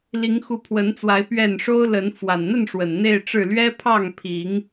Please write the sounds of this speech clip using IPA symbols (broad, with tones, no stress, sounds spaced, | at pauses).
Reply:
l i˨˦ ŋ x u˨˦ pʰ w ə˨˦ n t͡s w a˨˦ ɪ̯ p ɥ ɛ˥˨ n ʂ o˦ ʊ̯ l ə˨˦ n f w a˨˩ n n̪ ə˥˨ n ʂ w ə˨˩ n n̪ e˥˨ ɪ̯ ʈ͡ʂ ɻ̩˥˨ l ɥ ɛ˦ pʰ ɑ˥˨ ŋ pʰ i˨˦ ŋ